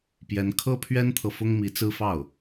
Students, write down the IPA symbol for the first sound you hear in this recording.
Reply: p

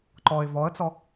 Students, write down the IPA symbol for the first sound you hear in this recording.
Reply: ǃ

